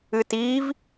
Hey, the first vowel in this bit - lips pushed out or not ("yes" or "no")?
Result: no